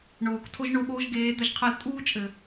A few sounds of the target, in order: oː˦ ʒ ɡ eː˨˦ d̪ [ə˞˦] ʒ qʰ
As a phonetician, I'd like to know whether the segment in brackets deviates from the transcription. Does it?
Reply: yes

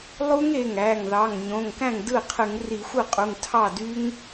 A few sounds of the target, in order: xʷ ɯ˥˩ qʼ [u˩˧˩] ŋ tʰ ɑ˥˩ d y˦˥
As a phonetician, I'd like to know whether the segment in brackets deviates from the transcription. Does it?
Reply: no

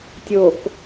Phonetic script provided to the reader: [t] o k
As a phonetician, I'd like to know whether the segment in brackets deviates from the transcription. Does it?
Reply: yes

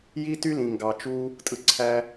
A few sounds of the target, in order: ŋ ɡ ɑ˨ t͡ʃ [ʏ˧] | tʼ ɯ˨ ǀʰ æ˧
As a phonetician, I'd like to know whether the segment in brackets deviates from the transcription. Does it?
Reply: yes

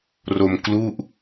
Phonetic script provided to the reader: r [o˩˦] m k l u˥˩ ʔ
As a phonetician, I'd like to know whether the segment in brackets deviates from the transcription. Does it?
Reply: yes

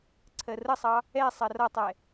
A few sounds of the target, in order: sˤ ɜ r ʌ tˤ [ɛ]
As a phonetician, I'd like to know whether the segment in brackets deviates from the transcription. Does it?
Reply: no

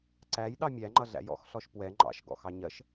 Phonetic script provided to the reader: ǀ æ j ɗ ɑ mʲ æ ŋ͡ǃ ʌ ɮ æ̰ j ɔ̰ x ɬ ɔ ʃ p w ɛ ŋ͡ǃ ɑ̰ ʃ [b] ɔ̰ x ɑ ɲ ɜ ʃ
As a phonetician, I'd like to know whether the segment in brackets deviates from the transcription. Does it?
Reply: yes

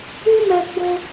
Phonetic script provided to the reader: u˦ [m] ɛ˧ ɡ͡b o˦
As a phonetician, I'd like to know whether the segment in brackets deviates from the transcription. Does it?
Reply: no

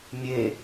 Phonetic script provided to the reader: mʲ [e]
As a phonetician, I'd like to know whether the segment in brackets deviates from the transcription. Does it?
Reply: no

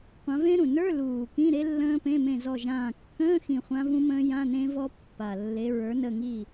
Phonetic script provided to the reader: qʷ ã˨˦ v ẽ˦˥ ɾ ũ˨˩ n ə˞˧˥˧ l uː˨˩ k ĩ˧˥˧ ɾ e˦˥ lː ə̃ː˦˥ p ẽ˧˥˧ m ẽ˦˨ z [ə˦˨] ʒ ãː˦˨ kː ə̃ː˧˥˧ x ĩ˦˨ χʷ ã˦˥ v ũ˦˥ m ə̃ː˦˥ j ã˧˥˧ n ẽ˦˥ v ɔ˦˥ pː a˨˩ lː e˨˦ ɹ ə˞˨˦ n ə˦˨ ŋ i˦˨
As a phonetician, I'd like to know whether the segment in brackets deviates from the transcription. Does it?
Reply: yes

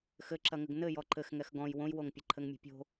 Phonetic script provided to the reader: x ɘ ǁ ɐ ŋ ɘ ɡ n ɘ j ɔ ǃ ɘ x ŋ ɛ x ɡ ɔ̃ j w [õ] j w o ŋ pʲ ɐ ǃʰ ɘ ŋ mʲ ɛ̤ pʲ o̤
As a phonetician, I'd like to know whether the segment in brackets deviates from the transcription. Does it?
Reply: no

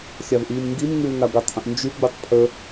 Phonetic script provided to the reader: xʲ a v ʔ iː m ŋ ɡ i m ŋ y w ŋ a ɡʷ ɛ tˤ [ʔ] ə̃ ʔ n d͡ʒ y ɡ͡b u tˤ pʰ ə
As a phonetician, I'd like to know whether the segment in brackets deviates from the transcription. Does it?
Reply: no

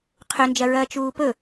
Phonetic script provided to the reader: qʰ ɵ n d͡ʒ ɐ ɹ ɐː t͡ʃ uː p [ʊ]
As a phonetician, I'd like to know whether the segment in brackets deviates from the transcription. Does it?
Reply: yes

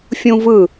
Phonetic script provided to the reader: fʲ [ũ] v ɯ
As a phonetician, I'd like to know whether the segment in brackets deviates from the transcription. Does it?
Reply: no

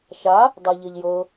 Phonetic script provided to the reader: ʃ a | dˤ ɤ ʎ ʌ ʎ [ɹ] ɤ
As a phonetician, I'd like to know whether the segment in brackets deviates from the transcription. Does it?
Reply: yes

